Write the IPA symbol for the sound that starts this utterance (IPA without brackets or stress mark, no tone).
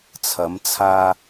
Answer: t͡sʰ